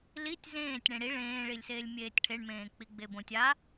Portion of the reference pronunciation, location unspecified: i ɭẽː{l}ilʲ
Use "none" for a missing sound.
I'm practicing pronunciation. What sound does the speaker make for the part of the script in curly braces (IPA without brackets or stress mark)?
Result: ɭ